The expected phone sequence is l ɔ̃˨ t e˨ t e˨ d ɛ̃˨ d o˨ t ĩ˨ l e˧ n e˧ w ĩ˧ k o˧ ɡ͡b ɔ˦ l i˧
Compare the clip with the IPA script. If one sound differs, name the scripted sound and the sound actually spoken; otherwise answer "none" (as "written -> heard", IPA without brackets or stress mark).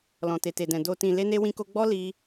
none